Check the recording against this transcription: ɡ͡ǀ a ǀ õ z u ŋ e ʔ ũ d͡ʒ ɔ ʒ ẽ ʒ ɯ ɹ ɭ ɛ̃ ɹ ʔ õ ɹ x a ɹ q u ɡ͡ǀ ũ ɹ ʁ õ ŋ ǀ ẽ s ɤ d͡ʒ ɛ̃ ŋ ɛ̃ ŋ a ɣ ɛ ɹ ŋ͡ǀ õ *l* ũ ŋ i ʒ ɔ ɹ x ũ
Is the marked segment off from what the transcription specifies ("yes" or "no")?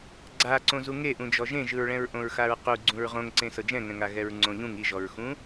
yes